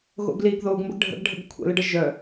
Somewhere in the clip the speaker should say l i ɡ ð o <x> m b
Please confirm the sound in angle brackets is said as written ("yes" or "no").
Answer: no